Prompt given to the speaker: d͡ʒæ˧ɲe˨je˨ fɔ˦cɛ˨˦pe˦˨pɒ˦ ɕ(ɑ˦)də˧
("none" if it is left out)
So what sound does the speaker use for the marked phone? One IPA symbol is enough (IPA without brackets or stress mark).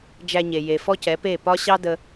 ɑ˦